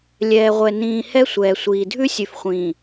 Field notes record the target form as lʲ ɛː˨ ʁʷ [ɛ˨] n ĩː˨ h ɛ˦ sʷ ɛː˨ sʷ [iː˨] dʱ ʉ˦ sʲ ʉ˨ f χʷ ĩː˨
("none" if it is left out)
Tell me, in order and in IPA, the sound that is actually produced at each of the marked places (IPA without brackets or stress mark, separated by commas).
ɛ˨, iː˨